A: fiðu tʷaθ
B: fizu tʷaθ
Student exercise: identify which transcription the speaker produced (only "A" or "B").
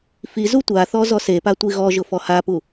B